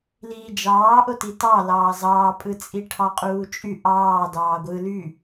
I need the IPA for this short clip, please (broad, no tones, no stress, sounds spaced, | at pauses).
l iː d͡ʒ ɑː ʔ o t i t ɑ l ɑː z ɑː pʼ ɯ t͡sʼ i ʈʰ ɑ qʼ uː t͡ʃʼ y ʔ ɑː d ɑː ɡʷ ɯ l y